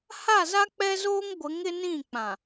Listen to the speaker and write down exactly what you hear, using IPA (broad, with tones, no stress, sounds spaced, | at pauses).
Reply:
h a˦˨ z a˦ k͡p ɛ˦ z oː˦ ŋ ɡʷ ɪ˨˦ ŋ ɪ˦ n ĩ˦˨ k͡p ã˨